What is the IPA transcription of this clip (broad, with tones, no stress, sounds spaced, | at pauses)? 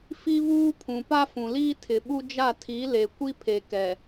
f i˦ β uː˦ pʰ ũ˨ p a˦ f ũ˨ l iː˦ tʰ ɪ˨ ɓ u˦ d͡ʒ a˦˨ tʰ i˨˦ l e˨ kʷ i˦ pʰ e˨ k ɛ˨